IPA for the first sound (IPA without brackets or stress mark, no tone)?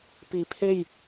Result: p